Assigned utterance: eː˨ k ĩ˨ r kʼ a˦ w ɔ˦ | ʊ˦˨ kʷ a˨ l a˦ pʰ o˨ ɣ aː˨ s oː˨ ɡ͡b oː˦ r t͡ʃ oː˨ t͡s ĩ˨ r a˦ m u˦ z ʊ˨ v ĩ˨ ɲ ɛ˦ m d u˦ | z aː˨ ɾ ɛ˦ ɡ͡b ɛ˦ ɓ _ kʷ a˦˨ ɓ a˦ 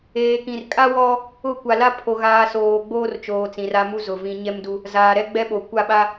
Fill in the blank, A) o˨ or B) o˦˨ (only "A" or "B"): A